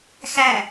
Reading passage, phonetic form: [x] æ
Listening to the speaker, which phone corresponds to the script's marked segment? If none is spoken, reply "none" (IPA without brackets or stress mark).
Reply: x